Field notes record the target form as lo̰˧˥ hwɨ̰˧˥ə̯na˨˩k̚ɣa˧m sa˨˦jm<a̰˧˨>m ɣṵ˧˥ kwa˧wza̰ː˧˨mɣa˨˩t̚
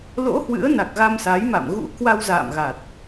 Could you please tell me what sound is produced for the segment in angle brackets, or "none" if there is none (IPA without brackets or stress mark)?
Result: a̰˧˨